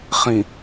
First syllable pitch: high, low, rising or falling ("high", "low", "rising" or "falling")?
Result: low